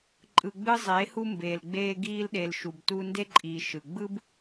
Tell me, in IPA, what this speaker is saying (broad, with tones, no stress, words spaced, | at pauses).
ǃʼɯ˨ɡ͡bɯ˧zˤeː˨˦hu˧ mbeː˨lɡ͡beː˧ ɡiː˧lɗe˨l ʃu˨btuː˧nde˦ǃʼiː˨ ʃɯ˨ ɡ͡bɯ˦b